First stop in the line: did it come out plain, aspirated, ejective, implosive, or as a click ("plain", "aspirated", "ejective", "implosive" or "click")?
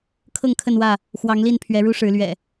aspirated